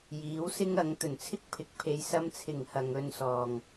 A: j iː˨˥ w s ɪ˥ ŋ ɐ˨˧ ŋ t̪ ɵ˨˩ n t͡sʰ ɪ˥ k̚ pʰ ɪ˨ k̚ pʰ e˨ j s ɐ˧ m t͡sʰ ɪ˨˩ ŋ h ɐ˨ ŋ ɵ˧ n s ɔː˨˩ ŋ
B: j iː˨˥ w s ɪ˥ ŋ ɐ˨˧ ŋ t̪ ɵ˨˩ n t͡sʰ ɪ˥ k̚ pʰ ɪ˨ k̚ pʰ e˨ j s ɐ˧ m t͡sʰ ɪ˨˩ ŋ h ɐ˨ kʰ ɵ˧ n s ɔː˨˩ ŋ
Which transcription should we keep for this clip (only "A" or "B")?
A